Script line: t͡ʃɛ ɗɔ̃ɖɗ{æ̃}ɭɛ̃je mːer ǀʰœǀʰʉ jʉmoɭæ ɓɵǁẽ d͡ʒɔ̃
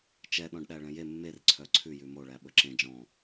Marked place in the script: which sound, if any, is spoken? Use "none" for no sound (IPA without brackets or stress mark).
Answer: æ